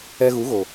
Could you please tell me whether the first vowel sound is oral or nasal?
oral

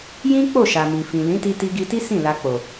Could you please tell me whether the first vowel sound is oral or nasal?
nasal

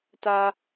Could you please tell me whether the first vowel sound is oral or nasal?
oral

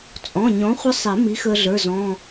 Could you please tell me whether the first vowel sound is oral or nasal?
nasal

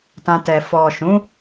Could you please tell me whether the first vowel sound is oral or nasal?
nasal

